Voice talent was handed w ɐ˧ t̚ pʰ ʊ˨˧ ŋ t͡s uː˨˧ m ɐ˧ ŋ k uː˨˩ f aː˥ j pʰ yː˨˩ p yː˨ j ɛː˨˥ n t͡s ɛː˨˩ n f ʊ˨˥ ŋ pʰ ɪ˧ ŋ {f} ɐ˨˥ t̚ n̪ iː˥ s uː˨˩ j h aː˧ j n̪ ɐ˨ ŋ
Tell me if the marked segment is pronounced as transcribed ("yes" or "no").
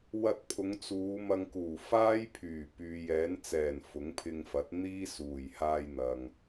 yes